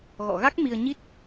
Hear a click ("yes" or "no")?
no